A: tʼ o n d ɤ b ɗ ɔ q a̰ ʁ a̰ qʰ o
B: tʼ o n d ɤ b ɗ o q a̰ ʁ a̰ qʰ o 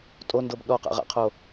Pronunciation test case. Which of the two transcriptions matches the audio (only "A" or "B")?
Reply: A